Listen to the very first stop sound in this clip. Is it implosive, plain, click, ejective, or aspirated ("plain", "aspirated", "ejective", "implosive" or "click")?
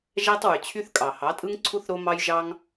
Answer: plain